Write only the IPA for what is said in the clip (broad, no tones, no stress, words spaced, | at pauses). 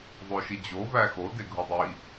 ðˤoʃid͡ʑo væxo deɡʱudˤi